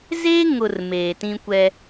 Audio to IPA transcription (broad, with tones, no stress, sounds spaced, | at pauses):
z eː˦ ŋ ʊ˨ r m eː˨ t ĩ˦ kʷ ɛ˦